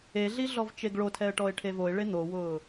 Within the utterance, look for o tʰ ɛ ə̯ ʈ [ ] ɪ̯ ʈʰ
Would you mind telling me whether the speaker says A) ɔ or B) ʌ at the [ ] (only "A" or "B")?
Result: A